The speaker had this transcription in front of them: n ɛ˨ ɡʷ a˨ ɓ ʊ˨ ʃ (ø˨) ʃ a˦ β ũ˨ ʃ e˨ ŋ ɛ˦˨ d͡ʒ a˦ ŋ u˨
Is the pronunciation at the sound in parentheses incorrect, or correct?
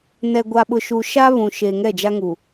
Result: incorrect: u˨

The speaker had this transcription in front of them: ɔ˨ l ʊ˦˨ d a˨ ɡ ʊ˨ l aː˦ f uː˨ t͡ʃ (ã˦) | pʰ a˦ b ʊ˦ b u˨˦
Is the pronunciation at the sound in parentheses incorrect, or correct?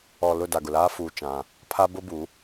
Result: correct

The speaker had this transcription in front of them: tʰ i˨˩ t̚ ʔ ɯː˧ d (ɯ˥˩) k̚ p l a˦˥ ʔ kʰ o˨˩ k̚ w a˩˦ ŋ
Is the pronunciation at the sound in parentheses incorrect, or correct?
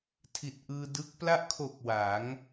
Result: incorrect: ɯ˦˥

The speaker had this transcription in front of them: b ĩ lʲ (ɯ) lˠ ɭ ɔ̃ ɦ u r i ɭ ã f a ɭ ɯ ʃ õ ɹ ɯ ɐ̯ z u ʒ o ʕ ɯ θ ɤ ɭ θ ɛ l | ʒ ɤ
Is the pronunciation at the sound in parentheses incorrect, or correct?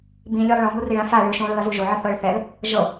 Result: correct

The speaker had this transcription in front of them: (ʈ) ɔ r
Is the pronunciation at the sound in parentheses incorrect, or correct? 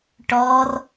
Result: correct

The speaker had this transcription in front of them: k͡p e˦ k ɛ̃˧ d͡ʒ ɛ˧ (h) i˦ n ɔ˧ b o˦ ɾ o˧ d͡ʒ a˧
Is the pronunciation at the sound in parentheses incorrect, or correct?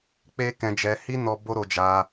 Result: correct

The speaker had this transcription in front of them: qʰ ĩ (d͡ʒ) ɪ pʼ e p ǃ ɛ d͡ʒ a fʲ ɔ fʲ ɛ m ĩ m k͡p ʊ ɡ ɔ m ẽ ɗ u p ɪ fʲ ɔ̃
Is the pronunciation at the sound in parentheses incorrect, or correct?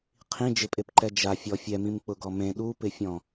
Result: correct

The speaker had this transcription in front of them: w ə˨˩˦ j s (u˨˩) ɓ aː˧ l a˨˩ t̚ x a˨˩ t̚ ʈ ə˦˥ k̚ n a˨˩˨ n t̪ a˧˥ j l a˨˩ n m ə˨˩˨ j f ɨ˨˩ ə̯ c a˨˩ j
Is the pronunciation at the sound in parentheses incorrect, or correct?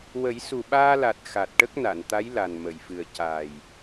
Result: correct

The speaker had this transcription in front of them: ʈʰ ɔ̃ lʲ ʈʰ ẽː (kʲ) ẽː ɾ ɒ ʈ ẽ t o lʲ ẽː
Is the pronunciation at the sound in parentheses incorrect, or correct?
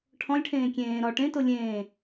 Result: correct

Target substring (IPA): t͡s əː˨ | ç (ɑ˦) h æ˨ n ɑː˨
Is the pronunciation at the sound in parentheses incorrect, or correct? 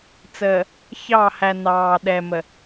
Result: incorrect: ɑ˦˨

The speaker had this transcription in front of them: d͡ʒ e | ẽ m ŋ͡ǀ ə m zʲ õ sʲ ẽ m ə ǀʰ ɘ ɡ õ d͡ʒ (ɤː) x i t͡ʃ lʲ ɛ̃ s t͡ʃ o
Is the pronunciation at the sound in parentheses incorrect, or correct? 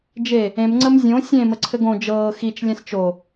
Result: correct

